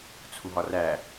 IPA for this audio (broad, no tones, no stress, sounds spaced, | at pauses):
t͡sʰ u ɦ ɒ r æ